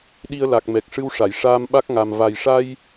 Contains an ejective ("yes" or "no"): no